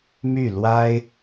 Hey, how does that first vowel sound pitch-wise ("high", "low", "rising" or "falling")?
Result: falling